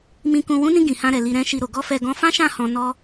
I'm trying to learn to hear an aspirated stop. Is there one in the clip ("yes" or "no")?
no